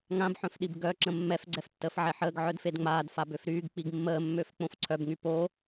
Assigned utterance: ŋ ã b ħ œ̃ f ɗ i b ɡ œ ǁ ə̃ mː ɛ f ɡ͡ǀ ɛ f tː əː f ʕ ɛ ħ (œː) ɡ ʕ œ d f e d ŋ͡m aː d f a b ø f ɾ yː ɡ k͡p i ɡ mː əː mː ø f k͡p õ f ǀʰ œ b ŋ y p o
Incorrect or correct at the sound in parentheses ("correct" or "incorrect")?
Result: incorrect